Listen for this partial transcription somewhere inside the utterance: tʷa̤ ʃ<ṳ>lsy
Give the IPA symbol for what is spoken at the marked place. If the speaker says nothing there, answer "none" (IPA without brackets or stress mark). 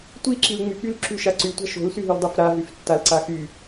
o̤